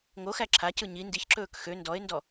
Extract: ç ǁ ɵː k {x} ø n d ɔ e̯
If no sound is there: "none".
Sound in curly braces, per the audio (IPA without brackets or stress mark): x